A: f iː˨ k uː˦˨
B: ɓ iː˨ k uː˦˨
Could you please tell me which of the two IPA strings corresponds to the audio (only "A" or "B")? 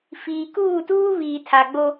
A